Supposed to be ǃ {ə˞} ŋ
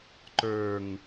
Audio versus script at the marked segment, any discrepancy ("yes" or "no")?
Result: no